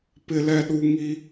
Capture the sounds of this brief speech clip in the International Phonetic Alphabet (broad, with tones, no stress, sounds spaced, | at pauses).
p ɪ˨ l ɛ˨ ɗ u˨ ŋ i˦